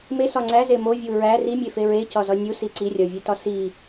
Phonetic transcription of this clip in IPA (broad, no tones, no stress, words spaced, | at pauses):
mesɒ ŋ͡ǀæze movʲu ɹæ rimʲefe ɹecɒzɒ nʲusi ǀirʲɒvʲetɒ si